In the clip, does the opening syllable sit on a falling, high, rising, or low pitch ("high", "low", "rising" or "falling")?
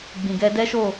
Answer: low